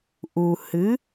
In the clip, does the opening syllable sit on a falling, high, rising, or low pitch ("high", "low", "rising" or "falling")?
low